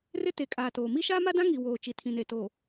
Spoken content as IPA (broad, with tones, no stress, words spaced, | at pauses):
rɪ˦te˨kʼaː˨toː˨ mi˦ʃaː˦ma˦dã˦ ŋi˨ woː˨t͡ʃi˨tʰĩ˨ne˨ to˨